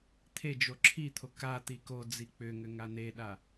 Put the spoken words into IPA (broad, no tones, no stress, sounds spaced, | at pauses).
t̪ʰ e d͡ʒ o ǁʰ i t̪ʰ o k a t̪ i k o d͡z i k͡p ʏ ŋ ʏ ŋ a n̪ e ɗ a